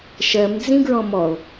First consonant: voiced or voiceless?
voiceless